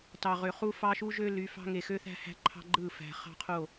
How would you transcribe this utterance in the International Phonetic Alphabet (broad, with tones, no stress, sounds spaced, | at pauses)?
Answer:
t ɑ˨ ʁ ø˨ χ u˦ f ɑ˦ ʃ u˦ ʒ ø˦ l y˨˦ f ɑ̤˦ ŋ e˨ x ø˦ θ æ̤˦ h æ̤˦ ǃʰ ɑ̤˦ ɡ͡ǃ ɯ˦˨ f æ̤˨ χ ɑ̤˦ qʰ o˦˨